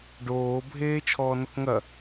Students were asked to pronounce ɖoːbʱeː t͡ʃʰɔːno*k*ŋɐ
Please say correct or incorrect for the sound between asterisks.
correct